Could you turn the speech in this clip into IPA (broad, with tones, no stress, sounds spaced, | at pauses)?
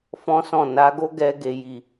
f ɔ̃˦ s ɔ̃˦˨ n a˨˦ ɡ o˦ ɡ ɛ˧ ɡ e˨ j i˨